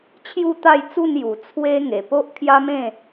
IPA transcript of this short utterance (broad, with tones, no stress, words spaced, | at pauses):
t͡ɕʰju˥˧t̪a˥˧jt͡su˥˧n ju˨˩ t͡sʰwe˦ ŋe˨˩po˦ʔkʰja˦ mẽ˥˧